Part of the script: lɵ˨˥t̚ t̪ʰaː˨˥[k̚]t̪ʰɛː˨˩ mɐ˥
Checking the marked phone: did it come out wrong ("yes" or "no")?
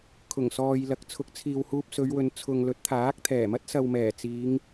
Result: no